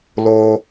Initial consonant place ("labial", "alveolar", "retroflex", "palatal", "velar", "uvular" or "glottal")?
alveolar